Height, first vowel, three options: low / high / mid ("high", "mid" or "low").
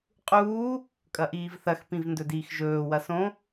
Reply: high